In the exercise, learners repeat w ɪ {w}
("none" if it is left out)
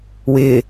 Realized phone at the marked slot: none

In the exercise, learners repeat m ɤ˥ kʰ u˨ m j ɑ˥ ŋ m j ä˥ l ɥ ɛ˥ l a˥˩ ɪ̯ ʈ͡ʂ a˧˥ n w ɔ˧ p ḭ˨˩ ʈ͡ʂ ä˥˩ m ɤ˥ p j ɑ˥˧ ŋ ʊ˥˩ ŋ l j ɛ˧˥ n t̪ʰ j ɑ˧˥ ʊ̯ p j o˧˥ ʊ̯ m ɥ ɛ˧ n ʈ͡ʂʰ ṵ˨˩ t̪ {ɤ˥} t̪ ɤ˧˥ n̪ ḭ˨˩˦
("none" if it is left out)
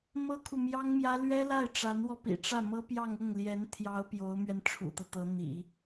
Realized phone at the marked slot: ɤ˦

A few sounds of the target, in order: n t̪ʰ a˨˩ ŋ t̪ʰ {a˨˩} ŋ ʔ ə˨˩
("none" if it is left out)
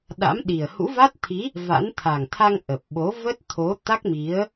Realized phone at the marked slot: a˧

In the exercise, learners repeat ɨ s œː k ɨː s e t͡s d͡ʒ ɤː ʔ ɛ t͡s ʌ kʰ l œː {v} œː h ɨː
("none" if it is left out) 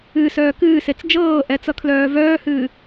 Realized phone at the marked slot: v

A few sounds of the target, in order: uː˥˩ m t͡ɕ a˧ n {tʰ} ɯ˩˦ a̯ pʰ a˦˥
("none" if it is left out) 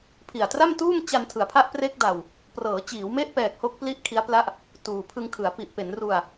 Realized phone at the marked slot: tʰ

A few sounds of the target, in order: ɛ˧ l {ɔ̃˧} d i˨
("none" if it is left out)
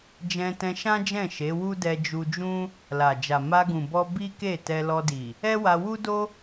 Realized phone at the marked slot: ɔ˧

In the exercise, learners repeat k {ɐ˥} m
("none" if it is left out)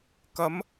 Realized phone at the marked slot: ɐ˨˥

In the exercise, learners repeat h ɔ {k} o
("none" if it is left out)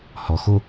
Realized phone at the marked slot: x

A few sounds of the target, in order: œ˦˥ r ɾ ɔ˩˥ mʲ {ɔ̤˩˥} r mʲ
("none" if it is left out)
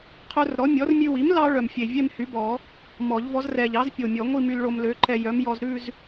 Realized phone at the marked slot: ɔ˩˥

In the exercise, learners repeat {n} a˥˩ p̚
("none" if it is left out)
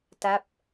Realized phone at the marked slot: t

